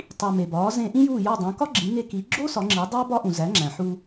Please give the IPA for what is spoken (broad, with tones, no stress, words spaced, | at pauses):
tˤi˩ me˩bɒː˩˥zẽ˧ ʔĩ˥juː˥˩jɒ˥˩ dˤõ˩˥kɒ˥ ɡ͡ǁĩ˩˥ŋe˧ki˩˥ ɡ͡ǁo˥ sɒ˩˥ŋ͡ǁi˩˥dˤæ˥ bɒ˥ʔũ˩ zæ˩˥ŋ͡ǁæ̃˩ħu˧